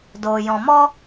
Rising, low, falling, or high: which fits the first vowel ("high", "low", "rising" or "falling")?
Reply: low